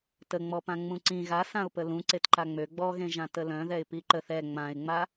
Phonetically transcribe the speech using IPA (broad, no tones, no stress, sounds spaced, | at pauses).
t ə ŋ͡m ɔ p ã ŋ͡m ũ ǀ ĩ ɣ a s ã ʊ̯ p ə l ũ ǀ e t ǃ a ŋ͡m ø ɡ͡b ɔ ɣ ẽ ʒ ã t ə l œ̃ ð ɛ ɪ̯ p i ǃ ə θ ɛ ŋ͡m ã ɪ̯ ŋ͡m a